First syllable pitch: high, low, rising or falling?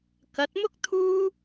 rising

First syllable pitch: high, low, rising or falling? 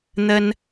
high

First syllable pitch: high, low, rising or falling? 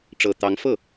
low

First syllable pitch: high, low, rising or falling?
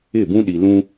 falling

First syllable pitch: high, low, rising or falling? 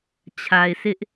low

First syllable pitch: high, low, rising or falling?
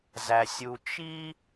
low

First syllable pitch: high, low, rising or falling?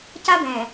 high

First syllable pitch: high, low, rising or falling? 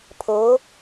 rising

